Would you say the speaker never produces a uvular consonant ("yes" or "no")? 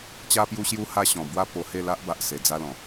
yes